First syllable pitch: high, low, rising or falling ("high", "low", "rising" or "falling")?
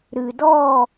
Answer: low